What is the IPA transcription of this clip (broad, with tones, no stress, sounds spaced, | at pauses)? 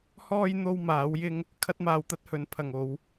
h ɔː˥ j n̪ o˧ w m aː˨˥ w j ɪ˥ ŋ | kʰ ɐ˥ t̚ m aː˧ w t̪ ɐ˥ t̚ h ɵ˨˥ n pʰ ɐ˨ ŋ o˨˧ w